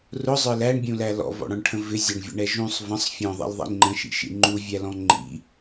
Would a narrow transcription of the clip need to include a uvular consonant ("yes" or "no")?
no